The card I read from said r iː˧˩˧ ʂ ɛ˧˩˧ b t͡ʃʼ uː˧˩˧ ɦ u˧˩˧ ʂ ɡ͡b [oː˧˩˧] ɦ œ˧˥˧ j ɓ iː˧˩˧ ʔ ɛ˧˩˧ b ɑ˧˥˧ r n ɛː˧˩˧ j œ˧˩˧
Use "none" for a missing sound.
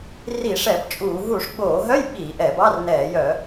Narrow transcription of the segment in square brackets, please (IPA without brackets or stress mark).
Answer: oː˧˩˧